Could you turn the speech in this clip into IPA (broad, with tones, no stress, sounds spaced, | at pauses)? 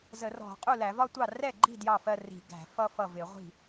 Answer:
z ə˧˩˧ r ɔ̤˧˩˧ qʼ u˥˩ l æ˧˩˧ v ɒ˥˧ tʷ ɑ˥˩ r ɛ˥˩ ɡ͡ǃ i̤˥˩ d j ɑ˥˩ f ɜ˥˧ r i̤˧˩˧ ɡ æ̤˧˩˧ f ʌ˥˧ f ʌ˥˩ v ɪ˧˩˧ ʁʷ i̤˥˩